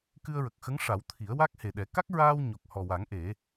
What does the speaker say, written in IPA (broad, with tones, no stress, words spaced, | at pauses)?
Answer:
kɨ˧ə̯ɹə˨˩k̚xə˧˥ŋʂa˨˩˦w t̪ʰi˨˩˦ə̯wa˦˥k̚he˨˩ɗɛ˨˩˦ ka˦˥k̚ɹaː˧w ɲo˨˩k̚hɔ˨˩wa˨˩˦ŋ ʔe˨˩˦